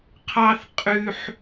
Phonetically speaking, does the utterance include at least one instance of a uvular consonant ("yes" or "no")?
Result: yes